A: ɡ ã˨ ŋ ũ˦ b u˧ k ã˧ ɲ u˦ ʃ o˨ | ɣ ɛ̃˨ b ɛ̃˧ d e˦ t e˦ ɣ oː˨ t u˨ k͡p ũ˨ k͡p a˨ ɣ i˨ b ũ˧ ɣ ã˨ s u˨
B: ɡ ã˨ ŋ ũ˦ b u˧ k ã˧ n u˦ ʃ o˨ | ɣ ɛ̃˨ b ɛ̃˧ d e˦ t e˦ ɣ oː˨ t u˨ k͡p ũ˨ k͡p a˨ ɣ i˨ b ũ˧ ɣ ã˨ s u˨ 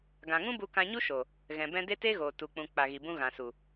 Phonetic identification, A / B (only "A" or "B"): A